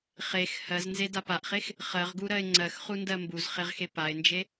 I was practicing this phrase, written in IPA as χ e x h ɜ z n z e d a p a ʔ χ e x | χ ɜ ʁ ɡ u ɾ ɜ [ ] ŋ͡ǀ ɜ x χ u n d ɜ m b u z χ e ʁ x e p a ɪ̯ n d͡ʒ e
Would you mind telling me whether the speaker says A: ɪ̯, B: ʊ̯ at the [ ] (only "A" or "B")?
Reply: A